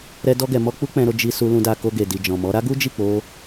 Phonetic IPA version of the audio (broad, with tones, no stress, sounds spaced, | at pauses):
ɾ ɛ˦ d ɔ˦ ɡ ɛ˧ m ɔ˦ k͡p u˦ k͡p ɛ̃˧ ɾ o˧ d͡ʒ i˧ s u˧ l ũ˧ d a˧ k o˧ ɡ e˨ d i˨ d͡ʒ ɔ̃˨ m ɔ˨˦ ɾ a˦ ɡ u˦ d͡ʒ i˦˨ k͡p o˧